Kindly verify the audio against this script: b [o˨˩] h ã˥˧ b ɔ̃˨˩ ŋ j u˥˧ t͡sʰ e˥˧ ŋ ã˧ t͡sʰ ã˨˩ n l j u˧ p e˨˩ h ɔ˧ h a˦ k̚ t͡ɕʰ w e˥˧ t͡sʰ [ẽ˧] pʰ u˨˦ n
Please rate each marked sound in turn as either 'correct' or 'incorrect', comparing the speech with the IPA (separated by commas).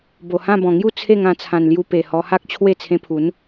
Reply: correct, correct